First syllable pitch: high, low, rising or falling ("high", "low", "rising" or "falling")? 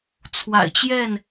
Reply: low